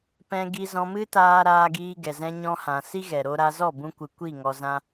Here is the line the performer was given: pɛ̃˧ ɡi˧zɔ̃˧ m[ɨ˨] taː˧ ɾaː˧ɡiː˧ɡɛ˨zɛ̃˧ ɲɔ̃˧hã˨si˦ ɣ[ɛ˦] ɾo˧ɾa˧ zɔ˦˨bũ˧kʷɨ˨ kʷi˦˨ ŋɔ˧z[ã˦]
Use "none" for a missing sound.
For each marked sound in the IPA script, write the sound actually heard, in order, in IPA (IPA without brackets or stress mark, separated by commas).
ɨ˦, ɛ˨, ã˦